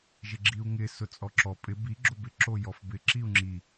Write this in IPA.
ʒɪɡ͡ǁiu̯ŋɪ sʊt͡sʼɔǁɔ pʼɪ bi ɡ͡ǁobɪ ǁojɔfbɪ ǁiu̯ŋ͡ǁi

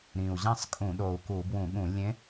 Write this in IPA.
ɾĩ˨˩u̯ʑæ̃˥˨sˤkʼũ˧˩˧ɗo˨˩u̯ ku˧˩˧ bwũ˧˩˧ɠũ˧˩˧ lʲẽ˧˥

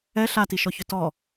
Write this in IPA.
ɛ ɬatiʃɔçʏ tɔ

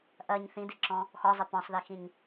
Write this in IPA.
ʔɜɲ θĩdiǁɔ̃ | xɔzˤɪ pɔ̃sˤðixĩɲ

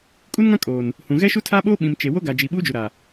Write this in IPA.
kʼu˦nŋã˦ kʼoː˨n | hũ˨ ɣɛ˦ʃu˦tʰaː˦ɓoː˦ ɓĩ˨m t͡ʃe˨ wo˦ɡa˨d͡ʒi˨ ɓuː˦d͡ʒu˨ɾa˨

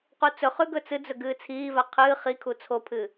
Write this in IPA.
qut͡sɵχʉ ɡɵt͡sɨd͡zɵ ɡɨːt͡sʰiːva qʰɨː χi kʰut͡sʰopʰɨ

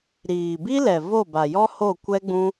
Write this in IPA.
ɾiː˨bi˦lɛ˨ vo˦˨ba˨jɔ˦ho˦˨ kʷɛ˦ɡ͡bũ˦

